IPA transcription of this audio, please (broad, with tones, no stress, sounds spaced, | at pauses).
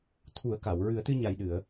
t̪ʰ u˨˩˦ ə̯ k a˨˩˨ w ɹ ɨ˨˩˦ ə̯ t̪ ɨ˧ ɲ a˨˩ j ɗ ɨ˨˩˨ ə̯